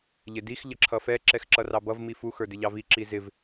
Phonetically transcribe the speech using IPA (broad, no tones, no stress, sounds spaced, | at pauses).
ʎ ɪ d i x ʎ ə ǁʰ ʌ f ɛ ǁ ɛ x ǁ ʌ r ɑ b ʌ v m i f u x ə˞ d ɪ ʎ ɑ v i ǁ i z ɪ v